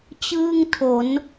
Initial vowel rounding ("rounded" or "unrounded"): unrounded